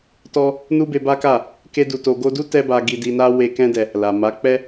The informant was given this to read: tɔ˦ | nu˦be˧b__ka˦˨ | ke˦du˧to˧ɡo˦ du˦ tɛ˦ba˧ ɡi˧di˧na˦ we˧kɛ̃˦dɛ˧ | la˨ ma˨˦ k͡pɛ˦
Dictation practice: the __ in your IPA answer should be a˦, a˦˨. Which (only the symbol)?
a˦